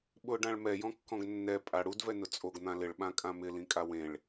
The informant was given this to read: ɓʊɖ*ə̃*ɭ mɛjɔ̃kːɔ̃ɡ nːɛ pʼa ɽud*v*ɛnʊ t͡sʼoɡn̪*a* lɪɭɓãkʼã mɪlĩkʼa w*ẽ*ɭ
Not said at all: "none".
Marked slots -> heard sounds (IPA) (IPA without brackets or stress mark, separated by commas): ã, v, ã, ẽ